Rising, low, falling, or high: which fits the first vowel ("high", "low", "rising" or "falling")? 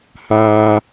low